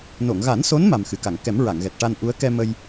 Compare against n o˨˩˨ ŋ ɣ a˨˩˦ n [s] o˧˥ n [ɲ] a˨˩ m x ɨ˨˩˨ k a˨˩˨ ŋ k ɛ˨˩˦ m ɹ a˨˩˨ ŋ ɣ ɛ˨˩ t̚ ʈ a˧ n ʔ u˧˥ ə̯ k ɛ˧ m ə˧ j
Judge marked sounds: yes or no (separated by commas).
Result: yes, no